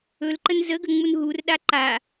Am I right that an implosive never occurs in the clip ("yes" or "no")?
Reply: no